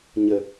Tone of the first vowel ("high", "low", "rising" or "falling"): low